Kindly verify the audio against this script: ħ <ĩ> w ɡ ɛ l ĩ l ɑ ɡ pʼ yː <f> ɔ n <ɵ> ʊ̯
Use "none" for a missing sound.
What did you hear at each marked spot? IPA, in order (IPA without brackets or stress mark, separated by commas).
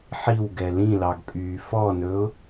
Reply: i, f, ɵ